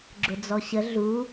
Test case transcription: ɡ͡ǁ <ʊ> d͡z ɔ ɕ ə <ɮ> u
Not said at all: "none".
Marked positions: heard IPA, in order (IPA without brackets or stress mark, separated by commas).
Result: ʊ, ɮ